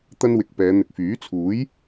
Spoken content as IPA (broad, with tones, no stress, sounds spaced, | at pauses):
t̪ ɐ˥ n w ɪ˧ k̚ p ɛː˨˧ n̪ ɪ˨ k̚ f yː˨˥ t͡sʰ uː˨˥ j